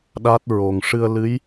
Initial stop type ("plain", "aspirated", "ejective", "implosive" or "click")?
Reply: implosive